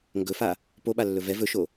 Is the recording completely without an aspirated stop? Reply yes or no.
yes